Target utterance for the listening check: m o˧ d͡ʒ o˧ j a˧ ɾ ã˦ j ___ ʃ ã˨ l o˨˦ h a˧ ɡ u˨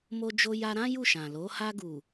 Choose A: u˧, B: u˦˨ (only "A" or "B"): B